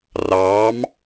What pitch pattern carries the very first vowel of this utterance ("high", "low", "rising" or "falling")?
rising